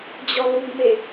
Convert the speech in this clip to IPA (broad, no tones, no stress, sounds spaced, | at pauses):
d͡ʑ ɔ l u ɡ m e